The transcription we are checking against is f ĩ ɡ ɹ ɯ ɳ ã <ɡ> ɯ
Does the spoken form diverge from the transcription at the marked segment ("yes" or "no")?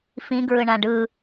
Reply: yes